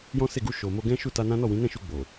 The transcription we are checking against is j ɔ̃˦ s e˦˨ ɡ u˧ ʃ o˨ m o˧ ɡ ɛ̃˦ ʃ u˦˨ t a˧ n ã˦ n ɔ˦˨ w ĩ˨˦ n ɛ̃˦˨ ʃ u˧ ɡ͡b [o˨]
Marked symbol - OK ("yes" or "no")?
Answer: yes